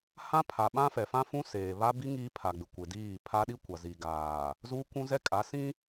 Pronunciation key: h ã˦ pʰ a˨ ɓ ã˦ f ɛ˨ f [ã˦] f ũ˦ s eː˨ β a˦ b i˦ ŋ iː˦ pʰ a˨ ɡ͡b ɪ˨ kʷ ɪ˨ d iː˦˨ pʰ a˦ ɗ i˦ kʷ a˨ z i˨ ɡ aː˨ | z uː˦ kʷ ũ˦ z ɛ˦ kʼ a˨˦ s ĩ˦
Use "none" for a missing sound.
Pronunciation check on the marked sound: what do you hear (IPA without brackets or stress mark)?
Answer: ã˦